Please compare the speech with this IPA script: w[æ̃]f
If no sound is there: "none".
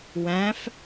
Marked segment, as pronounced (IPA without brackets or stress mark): æ̃